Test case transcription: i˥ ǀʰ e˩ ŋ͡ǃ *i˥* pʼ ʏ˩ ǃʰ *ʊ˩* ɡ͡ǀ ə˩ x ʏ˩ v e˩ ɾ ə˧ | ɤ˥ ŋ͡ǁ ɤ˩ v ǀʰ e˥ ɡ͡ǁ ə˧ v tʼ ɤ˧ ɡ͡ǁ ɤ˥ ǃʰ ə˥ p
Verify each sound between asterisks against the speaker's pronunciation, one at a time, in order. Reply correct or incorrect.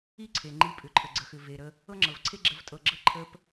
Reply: incorrect: i˧, incorrect: ə˩

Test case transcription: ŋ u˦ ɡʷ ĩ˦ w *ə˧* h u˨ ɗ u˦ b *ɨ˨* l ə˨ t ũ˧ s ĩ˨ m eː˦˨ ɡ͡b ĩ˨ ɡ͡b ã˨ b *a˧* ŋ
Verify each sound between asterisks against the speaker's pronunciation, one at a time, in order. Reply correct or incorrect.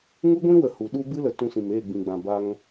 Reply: incorrect: ə˨, incorrect: ɨ˦, correct

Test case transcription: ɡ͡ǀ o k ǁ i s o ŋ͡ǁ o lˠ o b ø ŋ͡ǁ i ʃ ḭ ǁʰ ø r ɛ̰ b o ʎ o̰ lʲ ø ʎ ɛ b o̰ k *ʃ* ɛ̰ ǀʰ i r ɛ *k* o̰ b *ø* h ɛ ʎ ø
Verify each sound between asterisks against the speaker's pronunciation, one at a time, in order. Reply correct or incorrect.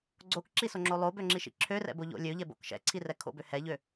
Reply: correct, incorrect: kʰ, correct

